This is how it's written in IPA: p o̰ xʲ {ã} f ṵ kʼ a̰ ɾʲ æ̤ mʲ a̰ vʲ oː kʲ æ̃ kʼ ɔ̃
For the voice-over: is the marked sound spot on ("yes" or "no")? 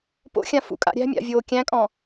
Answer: yes